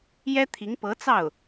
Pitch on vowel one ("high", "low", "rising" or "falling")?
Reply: high